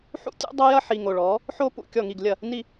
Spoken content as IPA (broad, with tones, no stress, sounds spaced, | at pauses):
ħ ṵ˥ tʲ ṵ˥ dˤ ɐ˥ j ɐ˥ ħ i˨ ŋ o˨ ɭ ɔ˩˥ | ħ o˥ p ṵ˥˩ kʲ ɔ˥˩ ŋ i˥˩ ɡ lʲ ɐ˥˩ | n i˥˩